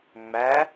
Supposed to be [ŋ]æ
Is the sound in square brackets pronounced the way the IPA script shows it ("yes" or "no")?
no